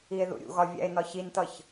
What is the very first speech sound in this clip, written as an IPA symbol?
i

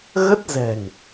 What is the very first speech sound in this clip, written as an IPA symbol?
ɣ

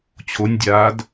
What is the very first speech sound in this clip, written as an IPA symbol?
t͡ɕʰ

